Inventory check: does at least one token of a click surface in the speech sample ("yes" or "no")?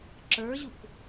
yes